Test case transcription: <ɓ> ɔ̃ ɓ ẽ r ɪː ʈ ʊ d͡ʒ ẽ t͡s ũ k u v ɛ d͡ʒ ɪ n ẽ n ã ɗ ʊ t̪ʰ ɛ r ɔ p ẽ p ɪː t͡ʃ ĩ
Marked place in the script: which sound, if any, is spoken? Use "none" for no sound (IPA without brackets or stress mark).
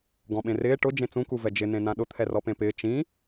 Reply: ɡ